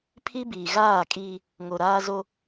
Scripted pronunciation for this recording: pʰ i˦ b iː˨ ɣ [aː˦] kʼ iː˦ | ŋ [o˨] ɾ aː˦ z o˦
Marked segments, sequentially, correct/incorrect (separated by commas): incorrect, correct